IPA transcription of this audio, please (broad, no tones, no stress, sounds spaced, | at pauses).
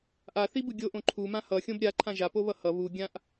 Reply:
ʔ a θ i b ɯ ɡʲ o ʔ õ ǃʰ u m ã h ʌ xʲ õ b ɾʲ a ǃʰ ã ʒ a p o β ʌ h ʌ β u ɡʲ ã ʔ